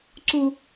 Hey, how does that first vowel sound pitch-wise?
high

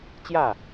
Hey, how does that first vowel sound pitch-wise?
falling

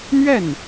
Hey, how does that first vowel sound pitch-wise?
falling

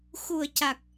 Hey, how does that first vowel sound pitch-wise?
low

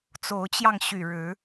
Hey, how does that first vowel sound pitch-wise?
rising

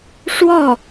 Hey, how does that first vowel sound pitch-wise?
falling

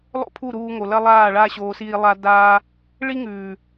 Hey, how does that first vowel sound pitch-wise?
high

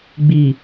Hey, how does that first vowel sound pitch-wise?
low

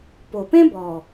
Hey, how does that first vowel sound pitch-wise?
low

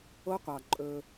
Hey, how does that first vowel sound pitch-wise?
high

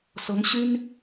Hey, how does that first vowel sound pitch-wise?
rising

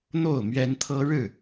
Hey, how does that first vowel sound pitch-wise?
falling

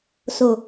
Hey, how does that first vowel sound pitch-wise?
low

